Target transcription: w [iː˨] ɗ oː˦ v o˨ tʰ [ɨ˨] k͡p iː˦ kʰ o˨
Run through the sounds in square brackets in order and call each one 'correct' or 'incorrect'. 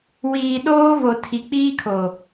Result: correct, incorrect: i˨

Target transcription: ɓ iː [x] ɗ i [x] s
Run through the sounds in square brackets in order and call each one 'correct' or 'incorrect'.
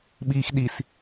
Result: correct, incorrect: none

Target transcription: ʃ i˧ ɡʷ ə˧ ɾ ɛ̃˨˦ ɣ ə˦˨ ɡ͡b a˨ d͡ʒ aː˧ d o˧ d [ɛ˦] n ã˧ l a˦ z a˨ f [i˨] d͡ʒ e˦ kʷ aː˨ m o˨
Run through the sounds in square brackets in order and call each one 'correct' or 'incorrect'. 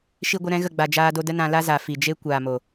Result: incorrect: ə˦, correct

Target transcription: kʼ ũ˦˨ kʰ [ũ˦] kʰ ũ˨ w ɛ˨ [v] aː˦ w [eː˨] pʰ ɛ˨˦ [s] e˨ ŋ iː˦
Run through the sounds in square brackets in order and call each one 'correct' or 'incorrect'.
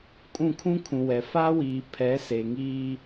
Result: correct, incorrect: f, incorrect: iː˨, correct

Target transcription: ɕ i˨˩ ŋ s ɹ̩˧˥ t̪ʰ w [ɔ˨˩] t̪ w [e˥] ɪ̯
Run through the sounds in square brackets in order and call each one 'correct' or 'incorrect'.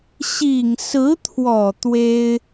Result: correct, correct

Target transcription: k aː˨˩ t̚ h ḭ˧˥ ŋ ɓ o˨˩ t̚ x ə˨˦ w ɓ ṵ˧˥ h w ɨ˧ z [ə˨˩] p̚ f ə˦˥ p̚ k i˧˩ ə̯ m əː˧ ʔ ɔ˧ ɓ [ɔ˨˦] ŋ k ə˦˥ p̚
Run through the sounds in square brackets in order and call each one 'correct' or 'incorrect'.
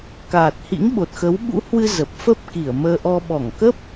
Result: correct, incorrect: ɔ˧˩

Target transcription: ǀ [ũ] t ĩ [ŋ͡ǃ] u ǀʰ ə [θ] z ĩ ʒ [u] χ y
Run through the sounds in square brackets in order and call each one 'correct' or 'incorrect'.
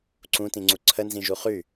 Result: correct, incorrect: ŋ͡ǀ, incorrect: n, correct

